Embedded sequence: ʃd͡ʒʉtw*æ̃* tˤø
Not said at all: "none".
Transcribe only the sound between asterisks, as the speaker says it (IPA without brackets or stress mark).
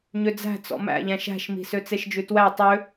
æ